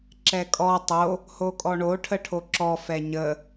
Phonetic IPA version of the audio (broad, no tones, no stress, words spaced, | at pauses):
ǁɛkʼɔ tˤo | hokʼɔɳo ʈʰəʈʰoǁɔ fɛɲə